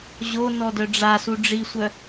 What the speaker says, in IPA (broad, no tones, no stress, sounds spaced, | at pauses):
ʑ o n ɔ d œ ɖ͡ʐ a s u ɖ͡ʐ i sʷ œ